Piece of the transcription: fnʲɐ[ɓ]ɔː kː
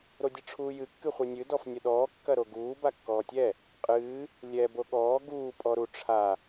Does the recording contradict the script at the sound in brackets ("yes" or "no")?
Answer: yes